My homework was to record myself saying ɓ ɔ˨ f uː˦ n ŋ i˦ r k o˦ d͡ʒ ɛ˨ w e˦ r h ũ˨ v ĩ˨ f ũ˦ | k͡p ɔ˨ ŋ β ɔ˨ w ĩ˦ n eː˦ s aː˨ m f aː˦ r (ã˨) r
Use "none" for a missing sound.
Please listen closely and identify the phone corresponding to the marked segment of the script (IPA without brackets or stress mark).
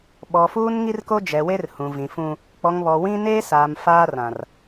ã˨